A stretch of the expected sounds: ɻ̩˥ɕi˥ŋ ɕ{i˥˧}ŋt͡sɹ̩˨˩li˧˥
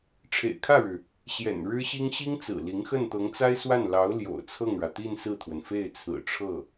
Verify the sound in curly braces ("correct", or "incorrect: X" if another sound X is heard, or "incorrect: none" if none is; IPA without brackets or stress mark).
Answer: incorrect: i˥